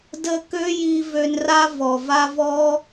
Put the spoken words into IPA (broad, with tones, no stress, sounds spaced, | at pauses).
d ə˧ k ø˦ j i˧ v ø˧ n r a˦ v ɔ˨ v a˦ v ɔ˦